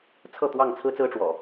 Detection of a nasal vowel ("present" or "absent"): absent